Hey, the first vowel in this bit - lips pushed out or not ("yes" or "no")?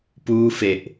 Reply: yes